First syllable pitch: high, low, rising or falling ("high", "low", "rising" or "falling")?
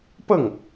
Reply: falling